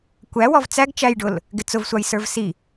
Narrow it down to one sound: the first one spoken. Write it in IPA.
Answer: kʷ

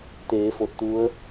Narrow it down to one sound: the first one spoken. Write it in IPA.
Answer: t̪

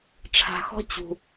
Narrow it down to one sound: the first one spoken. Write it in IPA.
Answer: ʈ͡ʂʰ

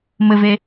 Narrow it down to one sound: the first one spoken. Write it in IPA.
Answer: m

